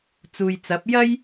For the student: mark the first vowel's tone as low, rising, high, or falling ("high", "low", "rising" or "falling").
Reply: low